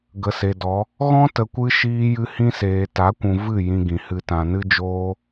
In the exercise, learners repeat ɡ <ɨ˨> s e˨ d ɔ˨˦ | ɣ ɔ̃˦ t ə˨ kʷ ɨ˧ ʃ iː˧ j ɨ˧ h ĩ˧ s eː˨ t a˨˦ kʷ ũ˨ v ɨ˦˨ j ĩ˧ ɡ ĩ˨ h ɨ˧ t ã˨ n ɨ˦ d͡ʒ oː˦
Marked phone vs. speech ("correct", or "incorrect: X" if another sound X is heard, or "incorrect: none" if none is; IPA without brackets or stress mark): incorrect: ə˨